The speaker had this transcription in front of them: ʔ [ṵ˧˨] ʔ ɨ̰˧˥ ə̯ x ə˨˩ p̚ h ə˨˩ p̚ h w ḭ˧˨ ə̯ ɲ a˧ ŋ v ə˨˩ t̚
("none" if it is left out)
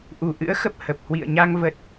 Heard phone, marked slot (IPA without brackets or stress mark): u˨˩